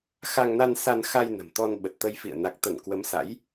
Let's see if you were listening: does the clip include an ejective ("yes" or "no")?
no